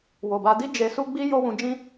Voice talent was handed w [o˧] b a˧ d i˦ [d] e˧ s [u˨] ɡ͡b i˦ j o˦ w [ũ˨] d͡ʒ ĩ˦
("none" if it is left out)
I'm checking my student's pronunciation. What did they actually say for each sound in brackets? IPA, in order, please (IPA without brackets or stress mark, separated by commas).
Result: o˨, d͡ʒ, u˦, ũ˧